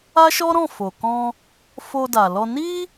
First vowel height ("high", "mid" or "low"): low